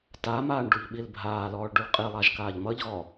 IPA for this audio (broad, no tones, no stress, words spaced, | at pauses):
tamaːɳ ɖuʎɓilbʱaːlɔːɭ ɖuɭqʼilˠaʒ kaːʎmʌʎɣɔ